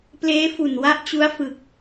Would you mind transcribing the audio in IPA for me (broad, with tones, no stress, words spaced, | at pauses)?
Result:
pleː˦˥fu˨˩n wa˦˥ʔt͡ɕu˦˥a̯fɯ˨˩k̚